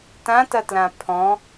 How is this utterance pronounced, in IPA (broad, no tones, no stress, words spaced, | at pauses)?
tãtɐtlã pʰɔ̃